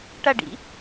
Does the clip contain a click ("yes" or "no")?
no